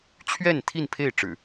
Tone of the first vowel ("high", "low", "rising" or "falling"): falling